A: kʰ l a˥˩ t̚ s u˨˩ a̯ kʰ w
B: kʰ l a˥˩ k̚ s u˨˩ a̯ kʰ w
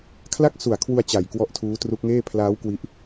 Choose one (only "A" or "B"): B